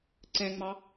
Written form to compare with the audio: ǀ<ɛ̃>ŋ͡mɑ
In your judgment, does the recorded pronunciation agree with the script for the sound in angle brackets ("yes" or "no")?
yes